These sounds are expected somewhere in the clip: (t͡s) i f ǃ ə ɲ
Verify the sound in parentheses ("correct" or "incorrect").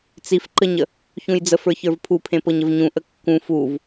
correct